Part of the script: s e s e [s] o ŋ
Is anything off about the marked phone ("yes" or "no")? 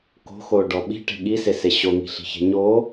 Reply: yes